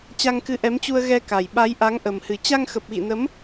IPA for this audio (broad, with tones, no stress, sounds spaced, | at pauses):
t͡ɕ a˧ ŋ k ɨ˨˦ ʔ ɛ˨˦ m t͡ɕ u˧ ə̯ ɣ ɛ˧ k a˨˩ j ɓ a˨˦ j ʔ a˨˦ ŋ ʔ ə˨˩ m h ɨ˨˩ t͡ɕ a˧ ŋ x ə˨˩ p̚ ɣ ḭ˧˨ n ə˨˦ m